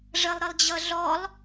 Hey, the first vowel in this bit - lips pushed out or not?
no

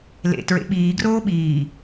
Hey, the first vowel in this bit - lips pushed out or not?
no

